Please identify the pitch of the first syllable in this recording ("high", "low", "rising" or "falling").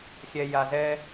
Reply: high